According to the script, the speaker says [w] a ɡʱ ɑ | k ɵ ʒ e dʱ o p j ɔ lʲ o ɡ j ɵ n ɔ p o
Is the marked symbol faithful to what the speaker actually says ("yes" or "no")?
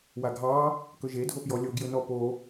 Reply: yes